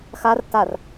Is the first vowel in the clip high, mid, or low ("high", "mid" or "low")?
low